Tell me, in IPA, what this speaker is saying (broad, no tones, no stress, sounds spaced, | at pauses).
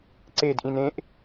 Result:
ǀ e d ʔ ĩ n ẽ ʔ